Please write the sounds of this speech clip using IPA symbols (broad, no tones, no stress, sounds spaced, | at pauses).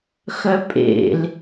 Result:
x œ pʼ ḛ l